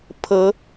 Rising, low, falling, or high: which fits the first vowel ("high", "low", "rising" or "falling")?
rising